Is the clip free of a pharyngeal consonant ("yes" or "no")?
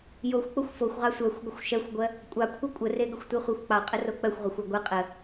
yes